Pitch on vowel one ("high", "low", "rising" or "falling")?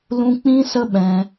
high